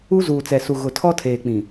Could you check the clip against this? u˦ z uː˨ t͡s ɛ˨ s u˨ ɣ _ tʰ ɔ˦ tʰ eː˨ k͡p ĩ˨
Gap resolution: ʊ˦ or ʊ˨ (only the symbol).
ʊ˨